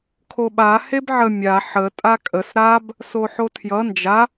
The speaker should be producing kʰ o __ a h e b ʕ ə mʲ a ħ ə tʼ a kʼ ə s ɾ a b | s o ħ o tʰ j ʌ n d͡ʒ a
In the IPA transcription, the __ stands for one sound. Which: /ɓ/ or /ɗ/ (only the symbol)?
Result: ɓ